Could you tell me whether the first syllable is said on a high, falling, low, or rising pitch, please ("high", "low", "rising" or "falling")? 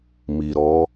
low